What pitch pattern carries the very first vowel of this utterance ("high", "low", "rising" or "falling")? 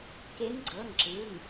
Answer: rising